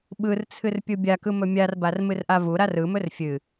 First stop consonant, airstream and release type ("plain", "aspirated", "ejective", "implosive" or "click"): implosive